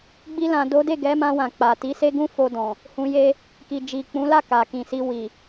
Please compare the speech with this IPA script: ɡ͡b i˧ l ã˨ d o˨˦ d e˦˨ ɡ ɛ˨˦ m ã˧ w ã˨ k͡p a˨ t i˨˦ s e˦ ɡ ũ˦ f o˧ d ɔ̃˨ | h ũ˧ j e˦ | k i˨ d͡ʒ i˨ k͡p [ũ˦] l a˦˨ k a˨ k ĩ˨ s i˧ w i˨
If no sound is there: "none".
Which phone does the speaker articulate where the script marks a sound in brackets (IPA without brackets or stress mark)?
ũ˨˦